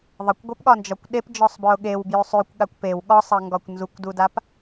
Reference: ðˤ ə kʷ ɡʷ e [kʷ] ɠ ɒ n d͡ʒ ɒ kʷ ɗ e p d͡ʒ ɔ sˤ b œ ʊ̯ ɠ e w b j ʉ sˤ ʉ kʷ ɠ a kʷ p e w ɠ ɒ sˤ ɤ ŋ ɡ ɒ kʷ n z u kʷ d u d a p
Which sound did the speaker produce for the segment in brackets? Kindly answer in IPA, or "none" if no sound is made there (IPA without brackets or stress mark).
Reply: p